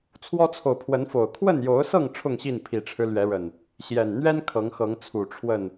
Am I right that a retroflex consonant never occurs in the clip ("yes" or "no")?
no